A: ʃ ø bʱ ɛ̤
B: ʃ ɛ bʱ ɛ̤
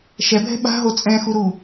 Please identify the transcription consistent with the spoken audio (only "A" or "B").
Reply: B